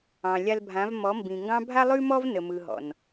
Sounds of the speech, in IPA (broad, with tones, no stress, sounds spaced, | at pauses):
ɑ̃˨ lʲ a˧ l bʱ ã˨˦ v m ɔ˨˦ m b ĩ˨ ŋ ɡ ɑ̃˦ bʱ a˧ lˠ ʉ˧ m ɔ˧ v n ə˨ m ɯ˨ ɦ ɔ̰˨ n